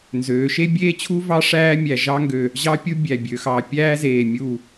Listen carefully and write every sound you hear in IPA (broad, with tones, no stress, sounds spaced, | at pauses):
n z øː˩˧ ʃ e˥ bʲ eː˥ t͡ɕʰ u˥ v ɑ˥ ʂ æː˥ mʲ æ˧˩ ʒ ɑ˥ ŋ ɡ ø˧˩ | ʑ ɑ˥ pʲ u˥ bʲ æ˧˩ bʲ ø˩˧ x ɑ˧˩ pʲ æː˥ z eː˧˩ mʲ u˧˩